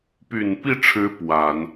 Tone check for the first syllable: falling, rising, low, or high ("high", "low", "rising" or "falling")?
low